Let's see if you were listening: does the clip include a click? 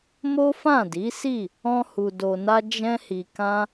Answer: no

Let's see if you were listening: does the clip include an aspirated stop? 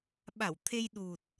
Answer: yes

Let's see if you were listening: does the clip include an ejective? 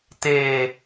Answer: no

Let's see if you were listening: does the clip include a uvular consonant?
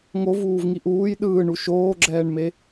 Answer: no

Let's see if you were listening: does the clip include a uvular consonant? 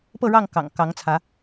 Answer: no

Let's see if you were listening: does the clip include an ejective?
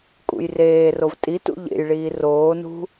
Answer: yes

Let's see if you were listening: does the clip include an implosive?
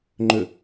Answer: no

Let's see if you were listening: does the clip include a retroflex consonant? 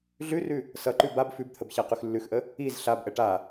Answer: yes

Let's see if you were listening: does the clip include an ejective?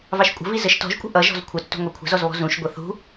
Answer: yes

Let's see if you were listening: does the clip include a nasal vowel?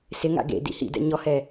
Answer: no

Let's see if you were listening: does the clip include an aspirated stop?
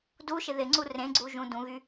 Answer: no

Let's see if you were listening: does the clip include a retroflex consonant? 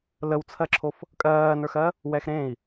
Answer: no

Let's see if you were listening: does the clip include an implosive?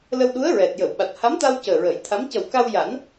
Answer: yes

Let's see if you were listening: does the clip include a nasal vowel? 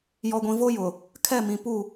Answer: yes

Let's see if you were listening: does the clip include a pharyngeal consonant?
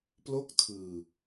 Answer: no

